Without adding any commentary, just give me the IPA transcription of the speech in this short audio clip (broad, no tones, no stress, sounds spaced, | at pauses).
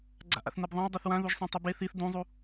ɡ͡ǀ a̰ ʔ a̰ θ n ɛ b ðˤ ã w dˤ o θ w ã ð u ʒ sˤ ã tˤ u b e θ i θ d ũ zˤ u